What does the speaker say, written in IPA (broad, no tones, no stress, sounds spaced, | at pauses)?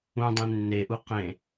ũ dˤ ẽ nː e ʔ u q ẽ